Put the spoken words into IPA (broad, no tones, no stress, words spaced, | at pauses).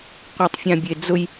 qʷatˤfʲãbʲed͡zʊj